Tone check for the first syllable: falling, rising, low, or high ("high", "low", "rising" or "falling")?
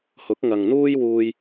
rising